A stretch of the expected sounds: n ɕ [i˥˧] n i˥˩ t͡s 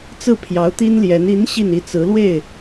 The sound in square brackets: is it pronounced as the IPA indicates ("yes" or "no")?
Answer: yes